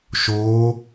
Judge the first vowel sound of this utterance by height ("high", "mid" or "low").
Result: mid